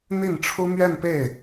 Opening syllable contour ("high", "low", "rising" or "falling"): falling